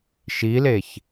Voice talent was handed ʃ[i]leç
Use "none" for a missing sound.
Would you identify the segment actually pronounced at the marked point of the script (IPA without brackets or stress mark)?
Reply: i